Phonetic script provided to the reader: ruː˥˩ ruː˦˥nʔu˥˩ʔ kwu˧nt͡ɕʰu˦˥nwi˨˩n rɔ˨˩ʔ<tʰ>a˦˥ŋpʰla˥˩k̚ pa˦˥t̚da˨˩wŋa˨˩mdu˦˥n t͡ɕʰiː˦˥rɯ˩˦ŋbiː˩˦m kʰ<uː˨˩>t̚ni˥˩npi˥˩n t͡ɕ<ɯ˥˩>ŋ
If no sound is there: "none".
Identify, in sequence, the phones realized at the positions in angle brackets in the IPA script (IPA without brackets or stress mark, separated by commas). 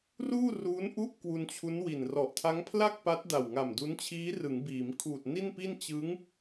tʰ, uː˨˩, ɯ˦˥